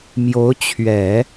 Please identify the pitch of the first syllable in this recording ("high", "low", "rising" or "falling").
rising